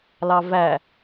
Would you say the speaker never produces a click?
yes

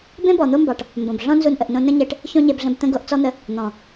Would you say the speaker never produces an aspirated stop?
yes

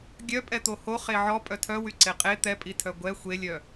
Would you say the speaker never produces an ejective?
no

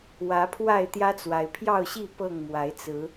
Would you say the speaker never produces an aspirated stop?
no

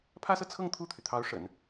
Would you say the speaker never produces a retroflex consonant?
no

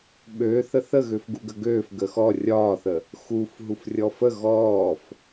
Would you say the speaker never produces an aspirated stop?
yes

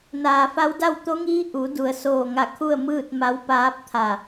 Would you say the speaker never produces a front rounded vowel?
yes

